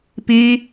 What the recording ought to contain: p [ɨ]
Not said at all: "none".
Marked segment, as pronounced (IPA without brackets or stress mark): i